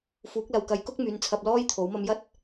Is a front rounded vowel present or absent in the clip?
present